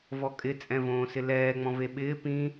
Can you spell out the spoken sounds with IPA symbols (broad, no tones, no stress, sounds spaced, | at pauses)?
v ɔ kʼ ɪ t͡sʼ ɛ̃ v õː s ɪ l ɛː ŋ͡m ɔ̃ v e ɓ ɪː p ĩ